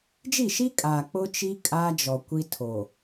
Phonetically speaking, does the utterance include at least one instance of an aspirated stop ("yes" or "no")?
yes